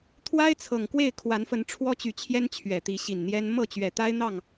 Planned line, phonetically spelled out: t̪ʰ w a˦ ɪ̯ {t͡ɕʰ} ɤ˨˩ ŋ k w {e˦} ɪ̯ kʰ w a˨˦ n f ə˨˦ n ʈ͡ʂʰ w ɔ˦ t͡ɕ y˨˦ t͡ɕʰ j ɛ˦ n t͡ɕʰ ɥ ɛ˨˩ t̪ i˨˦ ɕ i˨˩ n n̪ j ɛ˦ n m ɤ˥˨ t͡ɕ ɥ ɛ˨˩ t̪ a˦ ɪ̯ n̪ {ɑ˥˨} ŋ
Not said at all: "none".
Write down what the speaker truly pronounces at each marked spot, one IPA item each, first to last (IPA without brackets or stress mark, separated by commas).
t͡sʰ, e˥˨, ɑ˥˨